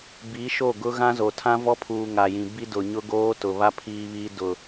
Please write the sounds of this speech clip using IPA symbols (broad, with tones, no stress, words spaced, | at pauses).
bi˨˦ ʃo˦˨ɡʊ˦ ɣã˦zo˨ tʰã˦vɔ˦pʰuː˨ ŋa˨jĩ˨ bi˦dʊ˨ɲʊ˦ɡoː˦ tʊ˨βa˦ pʰiː˦βiː˦ dʊ˦˨